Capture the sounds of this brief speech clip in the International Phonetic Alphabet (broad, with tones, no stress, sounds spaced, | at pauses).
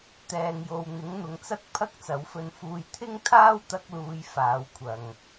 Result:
t̪ ɛː˨ ŋ j o˨ w n̪ ɪ˨˥ ŋ n̪ ʊ˨ ŋ t͡s ɐ˥ k̚ pʰ ɐ˥ k̚ t͡s ɐ˨˥ w f ɵ˧ n f uː˧ j t̪ʰ ɪ˥ ŋ t̪ʰ aː˥ w t̪ ɐ˧ k̚ l uː˨˧ j f aː˨˥ w kʷʰ ɐ˨ ŋ